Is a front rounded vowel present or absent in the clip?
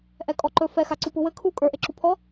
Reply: absent